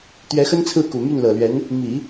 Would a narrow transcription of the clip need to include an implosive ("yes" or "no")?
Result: no